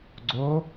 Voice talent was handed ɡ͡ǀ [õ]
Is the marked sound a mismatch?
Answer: yes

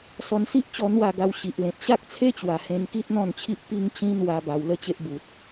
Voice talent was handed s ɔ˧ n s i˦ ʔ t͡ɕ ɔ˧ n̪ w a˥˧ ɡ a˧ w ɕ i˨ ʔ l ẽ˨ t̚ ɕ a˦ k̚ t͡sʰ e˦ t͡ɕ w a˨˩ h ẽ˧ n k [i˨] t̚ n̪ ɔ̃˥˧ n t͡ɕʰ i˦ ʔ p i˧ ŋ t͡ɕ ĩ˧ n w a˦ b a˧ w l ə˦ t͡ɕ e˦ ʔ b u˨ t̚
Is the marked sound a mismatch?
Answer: yes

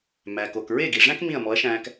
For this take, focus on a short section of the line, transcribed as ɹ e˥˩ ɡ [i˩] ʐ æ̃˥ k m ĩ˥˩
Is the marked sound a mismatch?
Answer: no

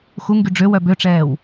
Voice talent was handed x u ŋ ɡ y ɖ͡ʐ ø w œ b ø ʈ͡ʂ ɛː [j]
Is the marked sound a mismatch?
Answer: yes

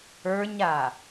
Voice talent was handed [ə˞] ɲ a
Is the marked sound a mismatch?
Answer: no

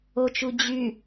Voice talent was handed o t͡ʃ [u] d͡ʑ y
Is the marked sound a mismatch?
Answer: no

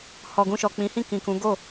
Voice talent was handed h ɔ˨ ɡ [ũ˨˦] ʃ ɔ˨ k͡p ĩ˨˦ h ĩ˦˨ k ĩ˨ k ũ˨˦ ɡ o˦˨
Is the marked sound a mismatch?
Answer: yes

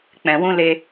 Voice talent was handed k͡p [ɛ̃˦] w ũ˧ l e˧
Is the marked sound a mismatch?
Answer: yes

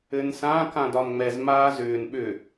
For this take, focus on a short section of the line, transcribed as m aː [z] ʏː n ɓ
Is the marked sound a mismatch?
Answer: no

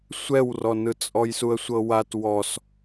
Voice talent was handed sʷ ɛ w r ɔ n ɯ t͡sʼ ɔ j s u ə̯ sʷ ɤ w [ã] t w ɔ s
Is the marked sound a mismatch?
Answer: yes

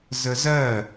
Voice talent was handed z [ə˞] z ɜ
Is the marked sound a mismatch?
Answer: yes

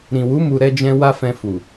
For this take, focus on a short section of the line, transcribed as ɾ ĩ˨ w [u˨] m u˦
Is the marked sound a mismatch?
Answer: yes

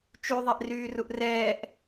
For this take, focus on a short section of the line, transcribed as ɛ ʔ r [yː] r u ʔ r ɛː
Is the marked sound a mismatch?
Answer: no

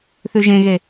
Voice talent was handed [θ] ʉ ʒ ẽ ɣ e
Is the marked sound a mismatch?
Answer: no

